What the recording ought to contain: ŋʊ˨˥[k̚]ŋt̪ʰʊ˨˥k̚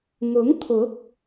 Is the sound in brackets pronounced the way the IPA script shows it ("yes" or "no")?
no